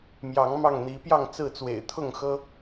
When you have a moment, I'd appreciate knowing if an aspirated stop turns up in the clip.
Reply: yes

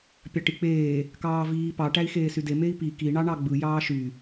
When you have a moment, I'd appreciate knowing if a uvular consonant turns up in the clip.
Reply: no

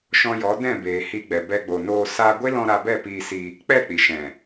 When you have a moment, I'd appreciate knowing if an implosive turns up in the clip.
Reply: no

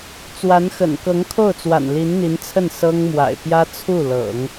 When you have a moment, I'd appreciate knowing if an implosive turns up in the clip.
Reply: no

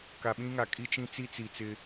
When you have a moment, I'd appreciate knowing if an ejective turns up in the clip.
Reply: yes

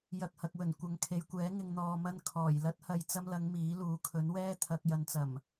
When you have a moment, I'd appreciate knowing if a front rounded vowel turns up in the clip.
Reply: no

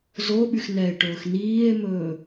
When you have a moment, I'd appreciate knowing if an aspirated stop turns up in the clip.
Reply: no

